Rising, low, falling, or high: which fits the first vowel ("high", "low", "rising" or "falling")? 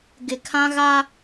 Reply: low